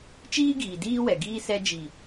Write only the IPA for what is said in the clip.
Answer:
t͡ʃ iː˦ ɡ iː˨ d iː˦ w ɛ˨ ɡ iː˦ s ɛ˧ d͡ʒ i˨

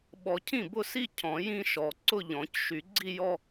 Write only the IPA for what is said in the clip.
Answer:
ɓ ɔ˨˩˦ cʰ ĩ˥˩ b ʊ˥˩ s i˥˧ cʰ ɔ̃˨˩˦ j ĩ˥˧ ʃ ɔ˨˩˦ ǀ ʊ˥˧ ʎ ɔ̃˨˩˦ c ʃ y˨˩˦ ɡ͡ǀ i˥˧ j ɔ˥˧

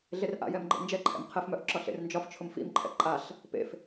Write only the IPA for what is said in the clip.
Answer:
ɮ e r ʔ a̰ j ɛ m ɡ͡ǃ ḛ n d͡ʒ ɛ ǃʰ ɛ̰ m qʰ ɛ f m œ ʔ ǁ ɒ ɬ ḛ r n d͡ʒ ɒ f t͡ʃʰ ʊ m f ḭ m ǃʰ ɛ̰ ǃʼ a ɬ | p ḛ f

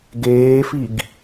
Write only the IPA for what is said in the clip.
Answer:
ɡ eː f i ɡ

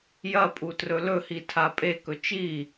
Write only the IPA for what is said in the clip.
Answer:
j ɐ pʼ u t r ɵ l ɵ h i tʰ a pʼ e k ɵ t͡ʃ i

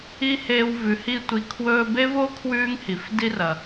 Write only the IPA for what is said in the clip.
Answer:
i˥ h eː˦ w v ʉ˨ h i˦ tʷ i˨ kʰ w ɵː˦ b e˥ v o˥ kʰ w ʉː˦ ŋ h i˩ f d i˦ r ɐ˩

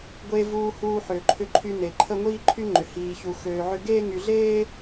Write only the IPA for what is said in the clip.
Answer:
ɡʷ e˧ v uː˧ h uː˧ ħ ø˩ ǃʰ ʏ˧ ǃʰ y˧ n e˩ ǃʰ ə˥ ŋʷ iː˥ ǃʰ y˥ ŋ͡ǃ ʏ˩ h iː˧ ç u˧ x øː˧ ʕ ʏ˥ ɡ eː˥ ŋ y˧ ɮ eː˥

